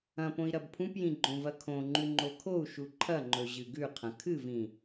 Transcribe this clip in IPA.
ɐ̃ p õ i̯ ɾ ɐ b pʰ ũ p j ĩ ɡ͡ǃ õ v ɐ kʰ õ ŋ͡ǃ ʉ ŋ͡ǃ o kʰ o u̯ ʃ u ǃʰ ɐ ŋ͡ǃ ɵ ʑ ɨ ɡ ʉ qʰ ɐ̃ kʰ ɨ v ĩ

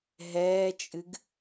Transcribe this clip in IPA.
ɦ ɛː t͡ʃʼ ɨ ɡ

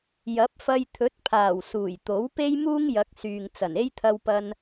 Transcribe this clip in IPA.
j ɐ˨˥ p̚ f ɐ˧ j t̪ʰ ɵ˨˥ t̚ pʰ aː˨˩ w s uː˨˩ j t̪ o˨˥ w p e˥ j m uː˥ ŋ j ɐ˨˥ k̚ s yː˨ ŋ t͡s ɐ˨˩ n e˥ j t̪ʰ ɐ˧ w p ɐ˧ n

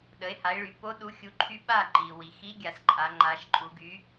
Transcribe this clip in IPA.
ɗ ə˩˥ e̯ h a˩˥ e̯ ɭ y˩˧ p o˧˥ ɗ u˩˥ xʲ u˩˥ ǃʰ y˧˥ ɓ a˥˩ ǃ i˩ w i˩ x i˧˥ ɡʲ a˩˧ s ǃʼ a˩˧ ŋ͡ǃ a˩˧ ʃ ǃʼ u˩˧ ɡ y˩˥

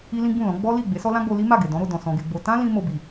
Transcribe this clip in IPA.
i˦ l ĩ˦ ɡ͡b ũ˦˨ l ɔ̃˨˦ ɡ͡b ɔ˦ l i˦˨ ɡ͡b e˨˦ s ɔ˦ l ã˦ ɡ͡b o˧ l i˦ m a˦˨ ɡ e˨ d ɔ̃˨˦ ɾ o˧ d ɔ̃˨ s ɔ̃˧ ɡ e˧ ɡ͡b o˧ t ã˦ l ĩ˧ m o˧ b i˨

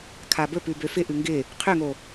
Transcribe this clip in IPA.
kʰ a b ɵ p ʉ b ø f ɪ ʔ ʉ ŋ ɡ ɪ | qʰ ø ŋ o

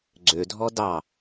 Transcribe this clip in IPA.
ɡ͡ǀ ø dʱ ɔ d ɑ

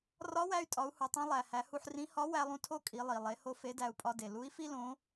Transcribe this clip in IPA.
r ɒ˧˥ w æ˧ y̯ tʼ ɒ˩˧ u̯ h u˩ tˤ ĩ˧ lˠ æ˩ h æ˩˧ h u˧ ħ r ĩ˧˥ h ɒ˧˥ w æ˧ lˠ ũ˧ tʰ o˥ kʼ i˩˧ lˠ i˩ lˠ e˩˧ h o˧ f e˧˥ d æ˧ u̯ pʼ ɒ˧ d e˩ l u˧˥ i̯ f i˥ l õ˧˥

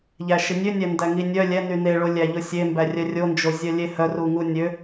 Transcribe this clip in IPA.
ʎ æ ʃ i nʲ ø nʲ ɛ n d æ ŋ i nʲ œ lʲ ɛ n y n e ɭ o lʲ æ ʎ o sʲ e m b æ rʲ œ rʲ o n d͡ʒ o zʲ œ lʲ e h œ r u ŋ u nʲ ø

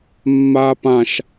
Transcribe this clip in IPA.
mː aː p ã ʃ

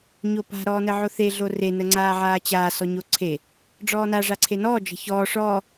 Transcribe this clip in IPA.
ɲ o p a̤ ɾ ɔː n ə ʕ o θ e ɮ o r e n ə ŋ͡ǀ aː ʕ aː t͡ɕ aː s ɔ ɲ o ǀʰ e | ɖ͡ʐ ɔː n a ʐ a ǀʰ e n ɔː d͡ʒ ə̤ ç ɔː ʂ ɔː

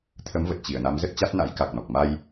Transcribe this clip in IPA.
t̪ʰ ə˨˦ m v ə˨˩ t̚ t͡ɕ i˧˩ ə̯ n a˨˦ m z ə˦˥ t̚ t͡ɕ a˦˥ t̚ n a̰˧˥ j k a˨˩ k̚ n ɔ˨˩ k̚ m a˧ j

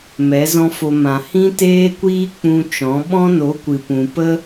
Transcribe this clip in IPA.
m ɛ˨˦ z ɔ̃˦ f o˧ m ã˨ h ĩ˦ t eː˦ kʷ iː˦ k͡p ũ˧ t͡ʃ ɔ̃˨˦ ɓ ɔ̃˦ n o˨˦ kʷ ɨ˨ p ũ˨ p ə˦

